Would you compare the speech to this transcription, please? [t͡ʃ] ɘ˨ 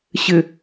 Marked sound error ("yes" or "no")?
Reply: yes